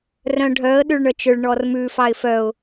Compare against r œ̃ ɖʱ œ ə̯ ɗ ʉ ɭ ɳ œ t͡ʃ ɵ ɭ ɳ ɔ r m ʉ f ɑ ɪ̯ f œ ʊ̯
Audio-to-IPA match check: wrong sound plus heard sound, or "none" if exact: none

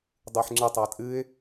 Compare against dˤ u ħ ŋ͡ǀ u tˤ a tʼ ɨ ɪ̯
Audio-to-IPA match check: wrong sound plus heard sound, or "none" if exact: none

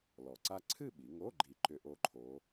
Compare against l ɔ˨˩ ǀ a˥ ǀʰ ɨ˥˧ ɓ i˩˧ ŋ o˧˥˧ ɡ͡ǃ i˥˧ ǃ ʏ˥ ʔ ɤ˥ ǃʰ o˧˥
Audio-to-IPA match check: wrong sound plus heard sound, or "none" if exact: ɤ˥ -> o˥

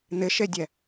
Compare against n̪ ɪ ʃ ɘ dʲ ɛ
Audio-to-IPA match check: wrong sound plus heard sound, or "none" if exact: ɘ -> e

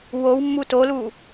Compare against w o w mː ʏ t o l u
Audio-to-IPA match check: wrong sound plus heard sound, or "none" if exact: ʏ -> u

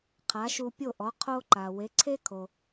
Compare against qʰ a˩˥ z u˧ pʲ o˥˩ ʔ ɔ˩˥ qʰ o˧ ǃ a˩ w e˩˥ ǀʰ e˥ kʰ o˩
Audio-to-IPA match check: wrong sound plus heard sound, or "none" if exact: z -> ʃ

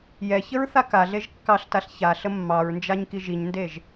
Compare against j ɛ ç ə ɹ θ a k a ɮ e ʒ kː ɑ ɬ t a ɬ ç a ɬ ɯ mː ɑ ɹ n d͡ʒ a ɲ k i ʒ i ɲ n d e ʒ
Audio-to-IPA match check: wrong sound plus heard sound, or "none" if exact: ɯ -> ə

